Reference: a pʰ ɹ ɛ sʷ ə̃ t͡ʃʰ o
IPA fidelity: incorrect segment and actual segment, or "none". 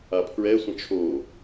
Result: none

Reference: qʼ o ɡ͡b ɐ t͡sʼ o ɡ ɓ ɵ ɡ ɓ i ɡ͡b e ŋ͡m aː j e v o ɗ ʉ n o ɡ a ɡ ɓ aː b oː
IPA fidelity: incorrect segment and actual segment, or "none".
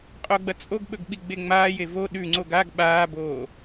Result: n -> ŋ͡ǀ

